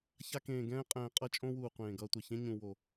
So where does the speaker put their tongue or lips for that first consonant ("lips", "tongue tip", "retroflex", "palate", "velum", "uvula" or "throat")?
palate